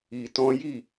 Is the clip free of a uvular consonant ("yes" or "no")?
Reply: yes